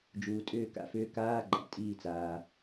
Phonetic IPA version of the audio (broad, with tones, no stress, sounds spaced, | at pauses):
d͡ʒ uː˩ tʼ ʏː˧˩ k a̰˥˩ f ʏː˨˦ k aː˧˥˧ ɡ͡ǃ a̰˩ tʼ iː˧˩ t͡s aː˩